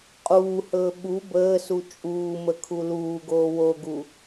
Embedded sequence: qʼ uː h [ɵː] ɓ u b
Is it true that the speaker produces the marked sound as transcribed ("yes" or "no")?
yes